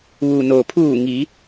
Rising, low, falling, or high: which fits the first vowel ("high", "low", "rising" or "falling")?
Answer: low